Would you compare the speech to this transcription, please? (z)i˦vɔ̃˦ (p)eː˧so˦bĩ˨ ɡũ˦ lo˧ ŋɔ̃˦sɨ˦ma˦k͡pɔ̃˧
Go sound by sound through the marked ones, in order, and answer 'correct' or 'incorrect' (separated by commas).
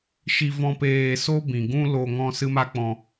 incorrect, correct